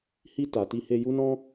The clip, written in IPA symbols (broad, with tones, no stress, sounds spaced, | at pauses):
h i˧ t a˨ t i˧ h e˧ j u˦ n ɔ̃˦